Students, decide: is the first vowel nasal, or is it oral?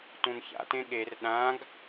nasal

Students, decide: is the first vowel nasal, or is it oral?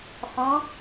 nasal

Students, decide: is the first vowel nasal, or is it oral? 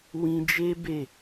nasal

